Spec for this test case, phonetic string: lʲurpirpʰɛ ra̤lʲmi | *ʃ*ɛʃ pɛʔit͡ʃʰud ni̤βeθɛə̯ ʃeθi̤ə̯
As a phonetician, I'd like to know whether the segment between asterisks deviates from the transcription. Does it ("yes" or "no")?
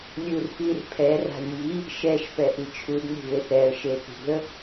no